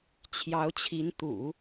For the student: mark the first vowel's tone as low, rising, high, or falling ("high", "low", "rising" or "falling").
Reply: rising